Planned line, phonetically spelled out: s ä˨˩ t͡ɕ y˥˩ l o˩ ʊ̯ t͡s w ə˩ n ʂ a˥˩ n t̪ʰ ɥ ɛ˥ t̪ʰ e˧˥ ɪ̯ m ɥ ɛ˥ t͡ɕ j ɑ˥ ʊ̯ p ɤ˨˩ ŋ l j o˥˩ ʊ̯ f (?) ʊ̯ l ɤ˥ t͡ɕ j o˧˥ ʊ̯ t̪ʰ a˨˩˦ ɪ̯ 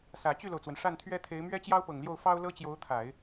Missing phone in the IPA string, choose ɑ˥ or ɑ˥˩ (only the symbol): ɑ˥